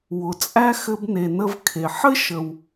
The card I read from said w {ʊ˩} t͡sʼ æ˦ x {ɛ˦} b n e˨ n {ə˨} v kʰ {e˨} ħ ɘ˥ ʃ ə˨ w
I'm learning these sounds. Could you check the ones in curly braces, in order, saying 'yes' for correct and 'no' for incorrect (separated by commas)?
yes, no, no, no